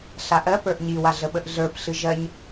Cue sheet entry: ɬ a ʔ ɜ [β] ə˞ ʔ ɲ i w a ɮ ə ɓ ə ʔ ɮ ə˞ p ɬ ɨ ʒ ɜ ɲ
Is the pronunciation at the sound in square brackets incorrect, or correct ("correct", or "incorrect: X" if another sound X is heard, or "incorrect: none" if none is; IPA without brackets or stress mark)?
incorrect: p